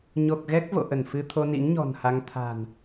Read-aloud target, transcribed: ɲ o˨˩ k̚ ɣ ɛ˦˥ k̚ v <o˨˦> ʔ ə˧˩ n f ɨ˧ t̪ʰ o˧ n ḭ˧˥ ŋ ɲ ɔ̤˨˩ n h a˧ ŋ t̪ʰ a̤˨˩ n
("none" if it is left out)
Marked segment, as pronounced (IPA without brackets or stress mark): o̰˧˨